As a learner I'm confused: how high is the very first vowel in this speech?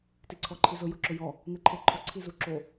high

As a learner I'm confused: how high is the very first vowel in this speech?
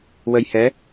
mid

